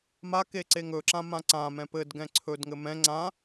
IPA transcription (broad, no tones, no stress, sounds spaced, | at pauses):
m a k e ǀ e ŋ ɵ ǁ ã m ã ǀ ã m ɛ̃ p ɘ d ɡ ɛ̃ ǀʰ ɵ d ŋ ɘ m ɛ̃ ŋ͡ǀ ã